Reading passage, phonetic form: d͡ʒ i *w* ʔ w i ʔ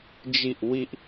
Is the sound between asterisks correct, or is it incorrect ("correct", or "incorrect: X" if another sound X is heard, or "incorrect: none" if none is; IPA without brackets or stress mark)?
incorrect: none